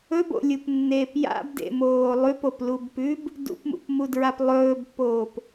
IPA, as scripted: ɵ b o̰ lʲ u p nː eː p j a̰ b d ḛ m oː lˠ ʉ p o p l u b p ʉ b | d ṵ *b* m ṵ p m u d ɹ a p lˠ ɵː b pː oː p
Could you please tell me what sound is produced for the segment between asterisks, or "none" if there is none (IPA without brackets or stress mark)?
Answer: p